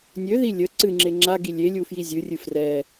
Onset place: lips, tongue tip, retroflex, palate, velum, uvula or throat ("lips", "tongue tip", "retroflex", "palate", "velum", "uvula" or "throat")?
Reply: tongue tip